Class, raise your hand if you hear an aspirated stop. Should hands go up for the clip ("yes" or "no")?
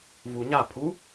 yes